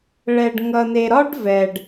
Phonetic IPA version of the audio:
ɭɛ˨ɖŋʌ˨ne˨ɾɒ˦ɖ vɛ˨ɖ

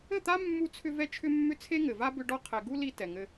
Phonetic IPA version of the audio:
ɘ˦˨t̪a˦mːu˧t͡sʰʏ˧ vɛ˦t͡ʃʰʏ˦mːʏ˦ t͡sʰe˦ŋɘ˨va˦ bʏ˧ɖɔ˧qʰɛ˨ ɡu˦li˧ tɛ˨ŋɘ˧

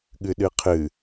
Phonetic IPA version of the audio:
ɠɨɗɨqʰɨ

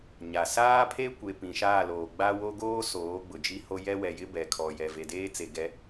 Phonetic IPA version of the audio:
ɲa˨ saː˦pʰe˦kʷe˨ pĩ˨ʃaː˦˨loː˨ ɡ͡ba˦wo˦ ɡoː˦ soː˨˦ɡ͡bʊ˨d͡ʒi˦ho˦ jɛ˦wɛ˨jɪ˦ bɛ˨ kʰɔ˨ jɛ˨ve˨deː˦t͡se˨ ɡɛ˦

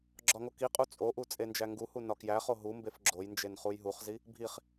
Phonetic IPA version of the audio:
ɡ͡ǁɒŋokiqʼu t͡sʼoʔu t͡sʼend͡ʒæŋɡuhu nɒkjæχo ɦumbef ɡ͡ǁojnd͡ʒen χujɦuχzi | bʱiχ

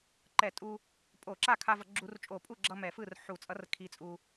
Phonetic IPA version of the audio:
ǃɛ˧˩˧tʼu˧ | pʼo˧˩˧ǁa˥˩kʰa˧vʌ˧˩˧ ɡ͡ǁu˧˩˧rt͡ʃʼo˧˩˧pʼu˥˩ɡ͡ǁʌ˧ mɛ˧˩˧fɯ˥˩r ħu˧˩˧t͡sʼʌ˧˥r kʰi˧t͡sʼu˧

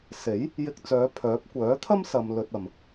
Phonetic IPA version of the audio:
se˨˥j | jɪ˧k̚t͡sœː˨˧ pʰœː˨˥p̚ kʷœː˨˥t̪ʰɐ˥msɐ˨m lɵ˧t̚ɐ˨m

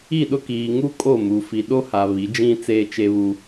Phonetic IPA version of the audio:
i˦˨ɗʊ˦ kiː˨ŋu˦ kʼo˦˨mu˨ fi˨ɗo˦ha˨ βi˨˦d͡ʒĩ˦ t͡seː˦t͡ʃe˦βu˦

